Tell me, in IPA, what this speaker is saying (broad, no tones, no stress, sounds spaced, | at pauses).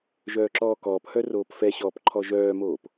ʒ œː ǁ ɔː k ɔː p h œ r oː p f ɛ ɕ ɔː p ǃʰ ɔ ʒ œː m oː p